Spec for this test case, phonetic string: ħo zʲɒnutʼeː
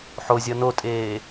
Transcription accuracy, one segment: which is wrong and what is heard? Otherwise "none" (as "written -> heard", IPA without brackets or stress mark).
u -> o